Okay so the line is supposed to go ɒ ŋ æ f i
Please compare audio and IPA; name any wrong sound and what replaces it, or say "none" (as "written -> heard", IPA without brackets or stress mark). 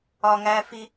none